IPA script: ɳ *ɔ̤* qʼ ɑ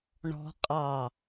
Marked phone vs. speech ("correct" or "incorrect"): correct